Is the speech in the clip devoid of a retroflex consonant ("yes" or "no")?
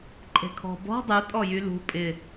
yes